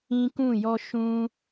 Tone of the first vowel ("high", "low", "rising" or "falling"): high